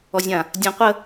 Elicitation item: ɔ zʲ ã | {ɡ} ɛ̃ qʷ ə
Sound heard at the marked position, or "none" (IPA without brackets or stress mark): dʲ